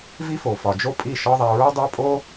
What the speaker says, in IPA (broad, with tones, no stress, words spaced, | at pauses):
vi˦fo˨fɒ˨ d͡ʒo˦pʼi˦˨ʃɒ˦ðˤæ˧ ɹo˦dˤæ˦pʼo˦